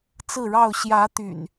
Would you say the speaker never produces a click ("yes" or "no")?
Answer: yes